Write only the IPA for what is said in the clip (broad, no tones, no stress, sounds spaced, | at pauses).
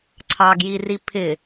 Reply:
ǀʰ ɑ ɡ j i r i pʰ ɪ